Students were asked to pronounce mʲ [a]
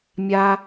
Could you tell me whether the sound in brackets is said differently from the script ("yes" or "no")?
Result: no